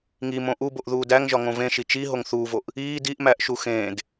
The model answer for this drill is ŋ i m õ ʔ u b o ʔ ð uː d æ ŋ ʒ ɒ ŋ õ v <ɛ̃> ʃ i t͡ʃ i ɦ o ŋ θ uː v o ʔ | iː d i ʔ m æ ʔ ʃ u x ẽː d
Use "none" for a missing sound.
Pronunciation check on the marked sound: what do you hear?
ẽ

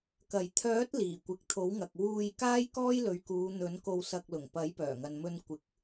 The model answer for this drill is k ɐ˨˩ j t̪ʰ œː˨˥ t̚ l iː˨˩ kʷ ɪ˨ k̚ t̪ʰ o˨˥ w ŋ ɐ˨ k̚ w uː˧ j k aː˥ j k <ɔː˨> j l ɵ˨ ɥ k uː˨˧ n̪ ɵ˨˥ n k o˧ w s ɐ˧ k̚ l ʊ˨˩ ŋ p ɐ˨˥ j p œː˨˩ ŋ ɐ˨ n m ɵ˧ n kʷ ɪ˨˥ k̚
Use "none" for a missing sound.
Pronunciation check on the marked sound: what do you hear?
ɔː˥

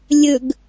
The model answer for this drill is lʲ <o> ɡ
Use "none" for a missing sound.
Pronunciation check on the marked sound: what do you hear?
ɵ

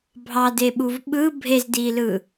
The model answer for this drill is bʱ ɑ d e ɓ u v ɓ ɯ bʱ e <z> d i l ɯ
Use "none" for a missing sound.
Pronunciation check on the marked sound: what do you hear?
z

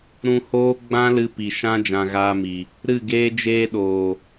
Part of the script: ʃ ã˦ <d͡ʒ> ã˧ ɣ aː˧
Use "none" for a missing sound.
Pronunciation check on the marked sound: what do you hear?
d͡ʒ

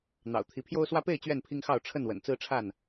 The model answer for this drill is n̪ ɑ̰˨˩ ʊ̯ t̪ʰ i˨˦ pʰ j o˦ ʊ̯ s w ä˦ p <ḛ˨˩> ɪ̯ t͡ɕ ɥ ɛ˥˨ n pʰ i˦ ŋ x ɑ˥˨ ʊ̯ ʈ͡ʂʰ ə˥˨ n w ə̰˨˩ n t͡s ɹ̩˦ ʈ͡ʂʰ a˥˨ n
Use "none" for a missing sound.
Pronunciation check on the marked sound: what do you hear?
e˥˨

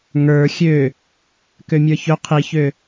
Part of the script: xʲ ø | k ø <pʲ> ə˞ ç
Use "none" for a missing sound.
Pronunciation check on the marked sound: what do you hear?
mʲ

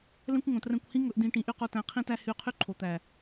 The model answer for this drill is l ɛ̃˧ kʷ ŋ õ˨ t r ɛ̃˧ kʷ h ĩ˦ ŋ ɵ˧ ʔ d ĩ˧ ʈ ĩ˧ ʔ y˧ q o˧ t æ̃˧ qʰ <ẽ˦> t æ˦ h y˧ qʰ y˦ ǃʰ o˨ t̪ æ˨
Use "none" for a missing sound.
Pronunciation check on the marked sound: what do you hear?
ĩ˦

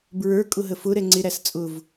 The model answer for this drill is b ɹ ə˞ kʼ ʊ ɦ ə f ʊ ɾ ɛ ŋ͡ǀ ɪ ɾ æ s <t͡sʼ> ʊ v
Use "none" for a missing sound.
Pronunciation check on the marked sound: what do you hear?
t͡sʼ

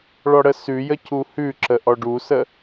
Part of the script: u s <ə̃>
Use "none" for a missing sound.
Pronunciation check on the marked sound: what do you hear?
ə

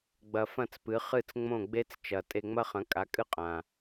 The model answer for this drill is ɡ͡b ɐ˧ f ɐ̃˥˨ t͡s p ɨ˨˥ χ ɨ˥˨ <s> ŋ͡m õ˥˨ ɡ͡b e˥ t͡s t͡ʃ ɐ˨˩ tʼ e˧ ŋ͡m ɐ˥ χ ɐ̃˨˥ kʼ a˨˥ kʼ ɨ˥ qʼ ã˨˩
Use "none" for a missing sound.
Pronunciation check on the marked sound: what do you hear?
t͡s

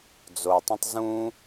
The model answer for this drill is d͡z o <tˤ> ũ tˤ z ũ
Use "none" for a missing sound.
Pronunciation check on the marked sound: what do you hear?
tˤ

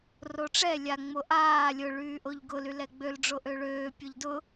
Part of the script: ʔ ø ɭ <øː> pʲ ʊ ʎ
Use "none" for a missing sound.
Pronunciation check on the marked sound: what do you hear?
øː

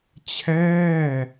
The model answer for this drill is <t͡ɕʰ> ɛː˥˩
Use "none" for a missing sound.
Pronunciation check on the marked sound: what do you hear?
t͡ɕʰ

